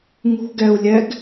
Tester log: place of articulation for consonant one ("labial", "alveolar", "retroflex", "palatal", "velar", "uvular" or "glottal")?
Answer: velar